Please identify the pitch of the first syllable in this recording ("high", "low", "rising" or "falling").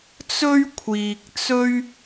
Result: high